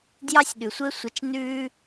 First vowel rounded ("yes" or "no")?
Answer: no